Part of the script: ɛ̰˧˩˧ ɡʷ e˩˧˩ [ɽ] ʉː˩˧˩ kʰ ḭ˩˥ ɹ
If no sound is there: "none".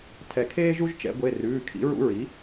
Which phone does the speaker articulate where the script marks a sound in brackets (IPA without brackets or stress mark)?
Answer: r